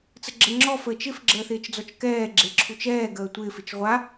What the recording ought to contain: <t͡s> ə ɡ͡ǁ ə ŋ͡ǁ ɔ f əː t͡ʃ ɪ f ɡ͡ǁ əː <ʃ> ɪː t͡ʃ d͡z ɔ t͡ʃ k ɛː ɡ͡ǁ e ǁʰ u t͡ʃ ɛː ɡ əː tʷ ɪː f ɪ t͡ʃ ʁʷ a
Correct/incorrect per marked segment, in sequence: correct, incorrect

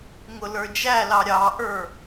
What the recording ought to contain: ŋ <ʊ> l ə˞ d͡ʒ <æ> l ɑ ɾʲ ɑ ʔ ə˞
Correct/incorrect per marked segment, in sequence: correct, correct

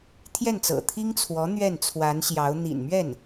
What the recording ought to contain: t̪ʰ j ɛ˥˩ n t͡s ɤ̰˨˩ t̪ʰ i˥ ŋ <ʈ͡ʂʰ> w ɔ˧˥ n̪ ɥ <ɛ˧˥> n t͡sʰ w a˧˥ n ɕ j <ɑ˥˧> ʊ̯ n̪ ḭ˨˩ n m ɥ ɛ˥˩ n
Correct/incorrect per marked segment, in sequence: incorrect, incorrect, incorrect

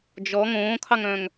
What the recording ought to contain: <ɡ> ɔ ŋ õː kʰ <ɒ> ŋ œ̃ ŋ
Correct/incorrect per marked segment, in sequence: incorrect, incorrect

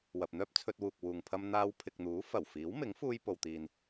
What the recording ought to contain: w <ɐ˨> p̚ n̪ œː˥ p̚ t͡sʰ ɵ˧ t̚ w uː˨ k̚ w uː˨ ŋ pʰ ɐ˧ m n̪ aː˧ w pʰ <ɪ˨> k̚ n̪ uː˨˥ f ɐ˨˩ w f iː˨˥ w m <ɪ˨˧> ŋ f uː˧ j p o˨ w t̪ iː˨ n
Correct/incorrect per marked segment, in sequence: correct, correct, incorrect

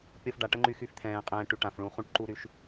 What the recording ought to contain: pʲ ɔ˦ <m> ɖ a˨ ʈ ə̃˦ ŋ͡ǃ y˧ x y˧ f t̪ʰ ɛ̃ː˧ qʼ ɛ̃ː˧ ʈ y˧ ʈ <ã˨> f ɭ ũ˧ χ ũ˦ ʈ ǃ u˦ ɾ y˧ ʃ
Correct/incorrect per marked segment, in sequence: incorrect, correct

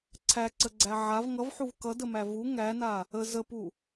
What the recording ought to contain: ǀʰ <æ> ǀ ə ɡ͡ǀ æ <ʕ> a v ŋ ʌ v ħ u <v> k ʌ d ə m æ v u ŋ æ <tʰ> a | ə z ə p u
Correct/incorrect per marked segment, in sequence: correct, correct, correct, incorrect

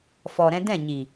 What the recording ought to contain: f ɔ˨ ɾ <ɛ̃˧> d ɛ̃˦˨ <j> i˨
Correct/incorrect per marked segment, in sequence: correct, incorrect

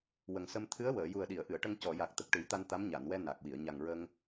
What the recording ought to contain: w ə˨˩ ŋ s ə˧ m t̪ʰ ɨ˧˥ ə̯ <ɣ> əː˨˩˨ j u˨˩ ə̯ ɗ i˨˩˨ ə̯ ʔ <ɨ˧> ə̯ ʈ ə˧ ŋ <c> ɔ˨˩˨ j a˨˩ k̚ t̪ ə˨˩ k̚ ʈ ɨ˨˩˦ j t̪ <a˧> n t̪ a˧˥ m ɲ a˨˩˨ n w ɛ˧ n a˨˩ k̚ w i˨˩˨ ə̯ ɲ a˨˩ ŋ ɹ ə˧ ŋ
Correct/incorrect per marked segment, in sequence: incorrect, incorrect, correct, correct

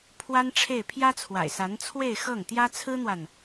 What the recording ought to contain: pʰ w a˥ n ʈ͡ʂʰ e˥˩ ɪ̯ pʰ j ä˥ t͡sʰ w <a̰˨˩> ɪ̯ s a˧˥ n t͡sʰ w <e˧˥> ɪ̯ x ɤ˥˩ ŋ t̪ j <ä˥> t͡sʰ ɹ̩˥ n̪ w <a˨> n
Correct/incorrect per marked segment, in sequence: correct, incorrect, correct, correct

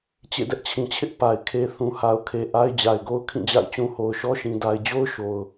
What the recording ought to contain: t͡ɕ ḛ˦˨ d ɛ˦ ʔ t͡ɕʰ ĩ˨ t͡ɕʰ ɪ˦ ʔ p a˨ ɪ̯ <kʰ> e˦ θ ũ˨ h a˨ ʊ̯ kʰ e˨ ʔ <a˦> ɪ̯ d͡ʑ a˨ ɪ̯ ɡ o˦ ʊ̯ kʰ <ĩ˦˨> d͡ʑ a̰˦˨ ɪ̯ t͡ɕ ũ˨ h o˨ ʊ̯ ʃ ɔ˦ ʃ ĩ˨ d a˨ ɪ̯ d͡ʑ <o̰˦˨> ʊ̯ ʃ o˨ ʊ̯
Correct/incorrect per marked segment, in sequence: correct, correct, correct, incorrect

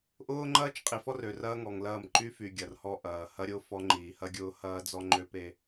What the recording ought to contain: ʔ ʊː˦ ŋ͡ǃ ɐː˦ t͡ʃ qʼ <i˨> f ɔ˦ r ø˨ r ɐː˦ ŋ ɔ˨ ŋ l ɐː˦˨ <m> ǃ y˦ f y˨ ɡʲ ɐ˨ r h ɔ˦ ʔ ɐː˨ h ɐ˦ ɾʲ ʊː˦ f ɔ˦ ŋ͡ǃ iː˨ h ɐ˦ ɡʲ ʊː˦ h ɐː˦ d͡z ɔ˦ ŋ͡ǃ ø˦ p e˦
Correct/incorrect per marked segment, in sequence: correct, correct

